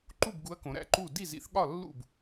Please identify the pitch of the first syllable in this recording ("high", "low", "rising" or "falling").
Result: falling